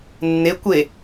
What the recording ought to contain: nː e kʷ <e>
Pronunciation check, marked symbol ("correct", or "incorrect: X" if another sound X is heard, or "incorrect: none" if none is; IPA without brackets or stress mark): correct